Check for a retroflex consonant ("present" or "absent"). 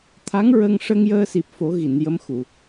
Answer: present